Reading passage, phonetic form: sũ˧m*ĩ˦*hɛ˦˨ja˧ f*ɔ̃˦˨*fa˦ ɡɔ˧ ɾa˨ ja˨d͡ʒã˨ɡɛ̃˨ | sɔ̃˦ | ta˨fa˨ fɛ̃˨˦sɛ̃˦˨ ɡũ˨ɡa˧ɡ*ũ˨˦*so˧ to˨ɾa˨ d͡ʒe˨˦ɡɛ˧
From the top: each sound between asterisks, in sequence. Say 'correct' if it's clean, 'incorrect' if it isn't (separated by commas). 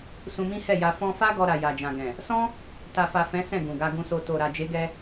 correct, incorrect, incorrect